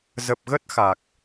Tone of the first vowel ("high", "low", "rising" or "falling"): low